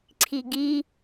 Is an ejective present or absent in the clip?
absent